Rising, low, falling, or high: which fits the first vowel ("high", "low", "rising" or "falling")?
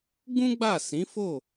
high